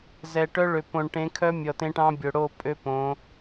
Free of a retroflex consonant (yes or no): no